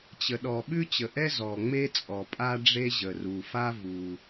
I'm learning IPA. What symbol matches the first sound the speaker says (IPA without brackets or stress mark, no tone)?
t͡ɕ